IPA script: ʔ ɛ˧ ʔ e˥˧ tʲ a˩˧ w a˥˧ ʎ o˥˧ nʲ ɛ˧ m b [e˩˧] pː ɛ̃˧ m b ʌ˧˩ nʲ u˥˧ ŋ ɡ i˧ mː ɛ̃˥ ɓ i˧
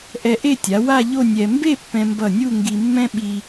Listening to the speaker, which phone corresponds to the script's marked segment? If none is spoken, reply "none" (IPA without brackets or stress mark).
e˥˧